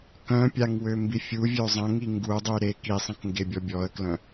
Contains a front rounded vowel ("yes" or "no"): yes